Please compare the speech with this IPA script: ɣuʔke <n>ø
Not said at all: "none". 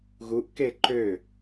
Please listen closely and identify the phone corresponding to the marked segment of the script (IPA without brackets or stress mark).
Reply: ǃ